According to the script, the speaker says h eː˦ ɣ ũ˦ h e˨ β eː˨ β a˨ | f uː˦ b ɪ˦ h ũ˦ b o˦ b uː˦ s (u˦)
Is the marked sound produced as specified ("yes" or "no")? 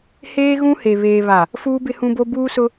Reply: no